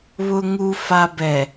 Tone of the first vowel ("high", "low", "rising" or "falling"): low